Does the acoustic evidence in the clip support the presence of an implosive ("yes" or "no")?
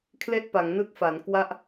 no